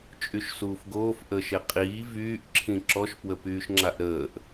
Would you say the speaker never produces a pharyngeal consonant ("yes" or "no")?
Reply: yes